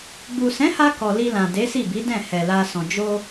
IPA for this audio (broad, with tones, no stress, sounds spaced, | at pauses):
ɡ͡b u˨ s ɛ̃˨˦ h a˧ k ɔ˨ l i˧ l ã˨ d e˨˦ s i˦˨ b i˨˦ d ɛ̃˦˨ h ɛ˨ l a˧ s ɔ̃˨ d͡ʒ o˧